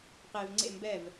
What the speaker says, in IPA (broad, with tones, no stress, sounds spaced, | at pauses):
q e˨ v ŋ͡ǀ ḛ˦˨ m b ɛ˦˨ v